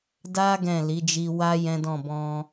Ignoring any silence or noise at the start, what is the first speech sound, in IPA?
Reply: d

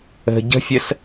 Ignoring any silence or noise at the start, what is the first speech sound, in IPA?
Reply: ə̤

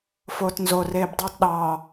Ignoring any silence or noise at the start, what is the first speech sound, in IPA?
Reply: f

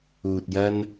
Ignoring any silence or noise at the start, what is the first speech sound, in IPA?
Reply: uː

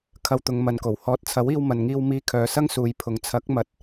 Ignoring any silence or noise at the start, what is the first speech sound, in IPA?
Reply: kʰ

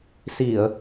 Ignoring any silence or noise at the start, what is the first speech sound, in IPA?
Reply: s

